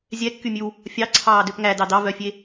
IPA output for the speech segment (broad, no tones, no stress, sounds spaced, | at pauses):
zʲ ɛ kː y mʲ ʉ w | fʲ ɑ ǀʰ ɑː d ø p ŋ æ d ɑ d ɑ v œ fʲ e